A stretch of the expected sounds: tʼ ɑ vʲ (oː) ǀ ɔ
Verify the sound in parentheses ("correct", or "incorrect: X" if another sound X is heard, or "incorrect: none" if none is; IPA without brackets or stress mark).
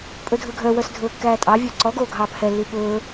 incorrect: ɵː